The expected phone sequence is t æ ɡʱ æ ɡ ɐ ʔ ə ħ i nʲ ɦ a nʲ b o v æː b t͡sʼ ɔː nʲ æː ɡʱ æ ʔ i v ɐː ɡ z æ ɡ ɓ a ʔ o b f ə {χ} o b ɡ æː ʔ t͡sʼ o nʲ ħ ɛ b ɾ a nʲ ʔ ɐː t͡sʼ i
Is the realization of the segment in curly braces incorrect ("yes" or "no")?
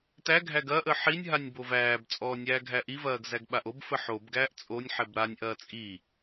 yes